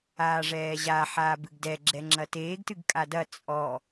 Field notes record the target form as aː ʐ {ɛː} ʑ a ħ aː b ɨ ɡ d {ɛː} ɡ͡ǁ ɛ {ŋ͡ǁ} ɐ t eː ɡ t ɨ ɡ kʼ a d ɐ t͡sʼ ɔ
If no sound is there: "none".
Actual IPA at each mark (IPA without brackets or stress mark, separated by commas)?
ɛː, ɛ, ŋ͡ǁ